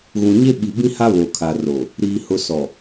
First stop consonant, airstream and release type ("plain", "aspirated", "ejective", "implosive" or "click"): implosive